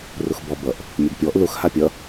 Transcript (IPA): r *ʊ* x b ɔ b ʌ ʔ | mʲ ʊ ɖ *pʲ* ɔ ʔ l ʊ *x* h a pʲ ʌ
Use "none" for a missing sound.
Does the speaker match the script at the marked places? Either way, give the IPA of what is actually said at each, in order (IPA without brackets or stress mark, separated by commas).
ʊ, pʲ, x